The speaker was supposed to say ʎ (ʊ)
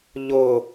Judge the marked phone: correct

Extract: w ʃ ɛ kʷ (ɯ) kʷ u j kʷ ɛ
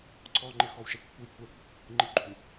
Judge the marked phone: incorrect: u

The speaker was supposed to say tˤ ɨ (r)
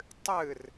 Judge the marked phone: correct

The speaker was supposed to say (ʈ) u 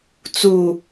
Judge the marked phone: incorrect: t͡s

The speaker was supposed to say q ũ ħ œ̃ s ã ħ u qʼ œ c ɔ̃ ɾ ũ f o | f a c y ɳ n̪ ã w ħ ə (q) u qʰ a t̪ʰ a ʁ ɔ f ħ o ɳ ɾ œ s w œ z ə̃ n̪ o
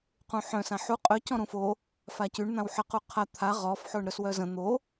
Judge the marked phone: correct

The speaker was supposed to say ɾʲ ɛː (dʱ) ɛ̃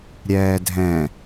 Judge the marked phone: correct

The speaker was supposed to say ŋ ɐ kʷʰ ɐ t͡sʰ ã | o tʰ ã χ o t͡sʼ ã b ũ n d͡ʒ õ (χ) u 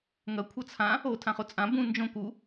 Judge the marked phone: incorrect: k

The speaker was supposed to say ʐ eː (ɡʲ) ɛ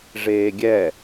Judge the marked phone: correct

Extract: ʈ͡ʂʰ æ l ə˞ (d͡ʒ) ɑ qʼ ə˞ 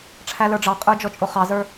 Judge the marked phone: incorrect: ɖ͡ʐ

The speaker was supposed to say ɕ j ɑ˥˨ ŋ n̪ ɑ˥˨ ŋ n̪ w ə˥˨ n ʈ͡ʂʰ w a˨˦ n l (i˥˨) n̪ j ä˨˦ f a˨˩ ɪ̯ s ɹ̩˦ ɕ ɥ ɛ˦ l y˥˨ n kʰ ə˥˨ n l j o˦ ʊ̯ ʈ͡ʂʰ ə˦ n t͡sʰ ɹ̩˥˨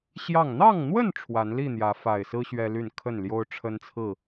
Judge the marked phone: correct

